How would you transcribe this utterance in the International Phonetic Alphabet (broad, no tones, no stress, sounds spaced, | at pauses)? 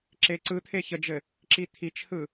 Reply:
ǁ e ǀ ɯ t̪ʰ e ç ə d͡ʒ ɘ | ǁ i t̪ʰ i t͡ʃ h ɯ